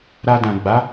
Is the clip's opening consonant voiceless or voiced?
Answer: voiced